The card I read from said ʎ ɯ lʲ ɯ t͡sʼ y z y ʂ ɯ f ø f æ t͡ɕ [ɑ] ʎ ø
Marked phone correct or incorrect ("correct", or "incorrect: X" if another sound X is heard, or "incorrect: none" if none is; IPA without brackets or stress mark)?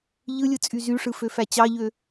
correct